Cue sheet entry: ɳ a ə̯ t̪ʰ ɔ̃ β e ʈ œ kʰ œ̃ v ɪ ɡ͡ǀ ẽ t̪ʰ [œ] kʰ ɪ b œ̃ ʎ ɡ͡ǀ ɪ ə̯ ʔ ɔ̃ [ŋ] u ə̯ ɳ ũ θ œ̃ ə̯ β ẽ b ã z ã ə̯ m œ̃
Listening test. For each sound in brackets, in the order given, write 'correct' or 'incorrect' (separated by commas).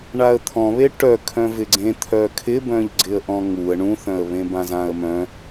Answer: correct, correct